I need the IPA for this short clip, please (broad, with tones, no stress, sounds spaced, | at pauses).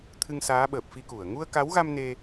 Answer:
t̪ʰ ɨ˧ ŋ s aː˨˦ ɓ əː˨˩ p̚ f i˧ k u˧˩ ə̯ ŋ u˧ ə̯ k a˨˦ w ɣ a˧ m n e˧